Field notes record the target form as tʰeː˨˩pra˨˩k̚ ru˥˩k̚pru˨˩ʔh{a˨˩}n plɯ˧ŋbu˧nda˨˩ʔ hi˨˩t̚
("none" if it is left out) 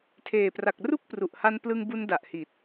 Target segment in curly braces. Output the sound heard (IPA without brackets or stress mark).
a˧